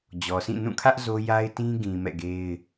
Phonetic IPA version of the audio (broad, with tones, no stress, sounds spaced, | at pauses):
d͡ʑ ɔ˨ s ĩ˦˨ n ũ˦˨ kʰ ä˦ ʔ z o˦ j a˦ ɪ̯ t ĩ˦ ɡ ĩ˨ m ɛ̰˦˨ ɡ e˦ ɪ̯